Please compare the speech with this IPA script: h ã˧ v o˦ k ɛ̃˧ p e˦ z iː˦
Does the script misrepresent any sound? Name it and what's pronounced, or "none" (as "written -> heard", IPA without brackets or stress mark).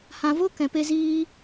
none